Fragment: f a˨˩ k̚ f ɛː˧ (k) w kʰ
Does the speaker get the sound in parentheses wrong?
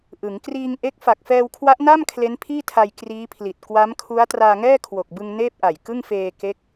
yes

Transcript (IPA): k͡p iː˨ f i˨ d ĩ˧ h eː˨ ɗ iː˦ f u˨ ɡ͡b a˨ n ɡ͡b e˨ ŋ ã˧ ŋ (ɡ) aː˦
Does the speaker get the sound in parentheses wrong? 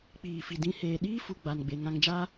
yes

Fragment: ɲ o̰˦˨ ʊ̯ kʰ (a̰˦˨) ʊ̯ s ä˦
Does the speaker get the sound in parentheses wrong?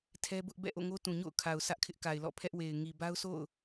yes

